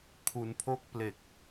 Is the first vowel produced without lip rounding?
no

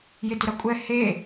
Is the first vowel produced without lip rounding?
yes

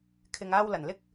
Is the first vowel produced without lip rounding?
yes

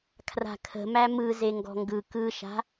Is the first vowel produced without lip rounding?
yes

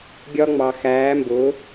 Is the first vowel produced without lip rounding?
no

